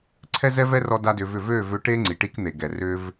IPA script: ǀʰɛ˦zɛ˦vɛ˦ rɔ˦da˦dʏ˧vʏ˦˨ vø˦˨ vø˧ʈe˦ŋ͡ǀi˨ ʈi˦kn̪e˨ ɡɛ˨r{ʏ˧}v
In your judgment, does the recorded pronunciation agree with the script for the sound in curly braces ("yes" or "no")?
no